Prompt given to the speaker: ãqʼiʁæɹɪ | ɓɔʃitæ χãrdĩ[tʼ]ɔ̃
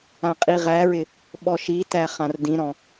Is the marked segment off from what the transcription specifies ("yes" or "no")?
yes